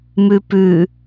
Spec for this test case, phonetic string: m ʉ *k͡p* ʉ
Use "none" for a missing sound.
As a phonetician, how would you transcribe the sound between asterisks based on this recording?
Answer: p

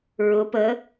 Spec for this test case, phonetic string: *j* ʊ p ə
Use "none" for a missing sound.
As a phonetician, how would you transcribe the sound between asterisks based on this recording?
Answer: ɹ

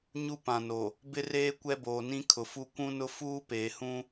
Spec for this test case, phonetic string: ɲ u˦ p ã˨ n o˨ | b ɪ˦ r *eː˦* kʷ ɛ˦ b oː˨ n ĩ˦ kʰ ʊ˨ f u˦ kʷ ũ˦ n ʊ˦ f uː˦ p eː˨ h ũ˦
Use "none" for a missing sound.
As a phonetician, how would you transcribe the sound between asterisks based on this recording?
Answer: eː˦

